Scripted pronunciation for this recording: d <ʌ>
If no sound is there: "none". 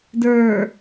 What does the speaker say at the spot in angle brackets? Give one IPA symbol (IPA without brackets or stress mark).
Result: ə˞